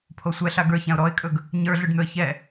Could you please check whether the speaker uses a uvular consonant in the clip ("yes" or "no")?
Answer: no